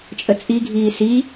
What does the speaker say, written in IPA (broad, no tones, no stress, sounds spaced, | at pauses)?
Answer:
t͡ʃʼ ə t͡sʼ i ɡʱ iː s i